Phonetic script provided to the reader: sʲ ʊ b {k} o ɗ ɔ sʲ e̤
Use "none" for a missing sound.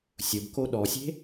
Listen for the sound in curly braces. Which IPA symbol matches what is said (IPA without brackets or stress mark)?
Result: k